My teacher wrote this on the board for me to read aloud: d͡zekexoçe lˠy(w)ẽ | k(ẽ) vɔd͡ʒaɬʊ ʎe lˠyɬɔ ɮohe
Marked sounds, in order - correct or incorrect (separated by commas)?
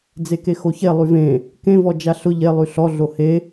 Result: incorrect, correct